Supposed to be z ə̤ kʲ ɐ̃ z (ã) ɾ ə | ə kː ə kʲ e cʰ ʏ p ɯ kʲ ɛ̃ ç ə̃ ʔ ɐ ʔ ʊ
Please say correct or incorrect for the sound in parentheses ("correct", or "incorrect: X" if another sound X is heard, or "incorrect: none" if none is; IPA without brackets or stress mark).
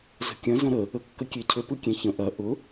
incorrect: ɐ̃